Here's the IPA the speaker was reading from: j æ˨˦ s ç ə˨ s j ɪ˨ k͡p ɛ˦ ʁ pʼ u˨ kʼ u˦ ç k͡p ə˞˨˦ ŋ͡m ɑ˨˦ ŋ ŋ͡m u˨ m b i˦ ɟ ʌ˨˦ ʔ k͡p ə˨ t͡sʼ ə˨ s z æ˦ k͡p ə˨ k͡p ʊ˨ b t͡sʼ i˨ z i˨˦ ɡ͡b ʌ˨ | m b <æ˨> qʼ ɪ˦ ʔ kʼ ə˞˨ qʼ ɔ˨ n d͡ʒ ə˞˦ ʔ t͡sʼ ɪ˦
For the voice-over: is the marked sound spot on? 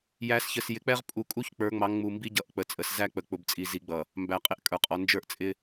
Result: yes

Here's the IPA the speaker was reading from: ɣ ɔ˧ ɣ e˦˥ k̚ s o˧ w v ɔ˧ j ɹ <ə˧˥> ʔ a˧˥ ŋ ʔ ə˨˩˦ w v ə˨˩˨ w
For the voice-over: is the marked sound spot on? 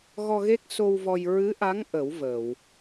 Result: no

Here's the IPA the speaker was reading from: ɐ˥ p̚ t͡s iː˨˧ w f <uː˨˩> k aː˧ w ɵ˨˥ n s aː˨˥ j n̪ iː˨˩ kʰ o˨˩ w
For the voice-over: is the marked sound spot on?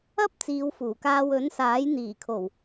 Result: yes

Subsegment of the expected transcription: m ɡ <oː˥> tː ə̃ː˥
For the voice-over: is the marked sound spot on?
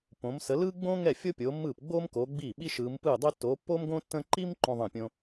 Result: no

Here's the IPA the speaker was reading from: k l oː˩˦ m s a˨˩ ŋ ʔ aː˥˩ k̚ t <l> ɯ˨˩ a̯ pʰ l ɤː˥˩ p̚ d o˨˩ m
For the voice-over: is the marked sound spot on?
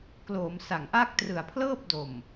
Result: no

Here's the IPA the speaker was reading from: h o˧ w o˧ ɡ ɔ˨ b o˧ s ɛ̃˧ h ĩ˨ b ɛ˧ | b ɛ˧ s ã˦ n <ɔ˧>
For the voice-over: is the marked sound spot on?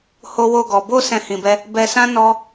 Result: yes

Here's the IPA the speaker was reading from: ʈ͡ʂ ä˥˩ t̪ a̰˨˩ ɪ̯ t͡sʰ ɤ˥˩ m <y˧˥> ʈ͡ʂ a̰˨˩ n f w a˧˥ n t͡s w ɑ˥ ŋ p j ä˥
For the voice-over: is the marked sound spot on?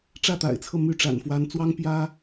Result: yes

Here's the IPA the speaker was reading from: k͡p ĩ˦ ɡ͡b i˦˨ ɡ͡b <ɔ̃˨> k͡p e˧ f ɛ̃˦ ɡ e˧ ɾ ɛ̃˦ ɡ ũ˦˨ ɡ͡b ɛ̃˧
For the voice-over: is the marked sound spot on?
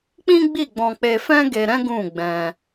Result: no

